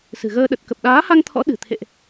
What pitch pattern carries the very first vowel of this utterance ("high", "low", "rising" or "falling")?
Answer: low